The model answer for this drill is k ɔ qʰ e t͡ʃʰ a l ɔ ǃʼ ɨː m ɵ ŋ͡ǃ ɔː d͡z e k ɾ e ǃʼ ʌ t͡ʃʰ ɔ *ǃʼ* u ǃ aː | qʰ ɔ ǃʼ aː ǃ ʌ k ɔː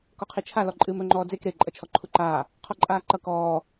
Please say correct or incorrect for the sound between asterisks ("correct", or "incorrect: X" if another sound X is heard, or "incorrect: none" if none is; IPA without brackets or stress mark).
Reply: incorrect: ǃʰ